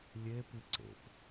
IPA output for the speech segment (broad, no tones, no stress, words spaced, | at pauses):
lʲepɨ ǀḛp